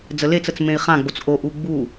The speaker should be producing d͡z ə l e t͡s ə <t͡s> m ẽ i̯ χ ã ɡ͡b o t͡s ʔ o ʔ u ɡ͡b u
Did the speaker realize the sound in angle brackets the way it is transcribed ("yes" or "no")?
yes